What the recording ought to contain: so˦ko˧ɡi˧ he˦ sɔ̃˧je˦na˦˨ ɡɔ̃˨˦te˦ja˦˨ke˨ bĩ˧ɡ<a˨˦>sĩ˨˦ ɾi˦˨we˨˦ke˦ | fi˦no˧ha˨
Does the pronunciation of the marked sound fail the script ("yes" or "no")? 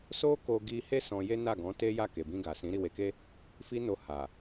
yes